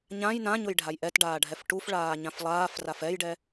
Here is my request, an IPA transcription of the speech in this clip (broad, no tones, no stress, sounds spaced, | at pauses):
ɲ ã j n ã ɲ ʊ j ɖʱ a j ʔ ɛ t ɖ aː ɖʱ ɛ f ʈ u f ɭ aː ɲ ã f lˠ aː f r a f ɛ j ɖ ɛ